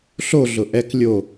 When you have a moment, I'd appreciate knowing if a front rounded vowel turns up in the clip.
no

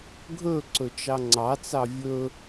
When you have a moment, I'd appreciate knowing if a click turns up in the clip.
yes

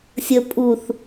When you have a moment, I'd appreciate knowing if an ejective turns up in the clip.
yes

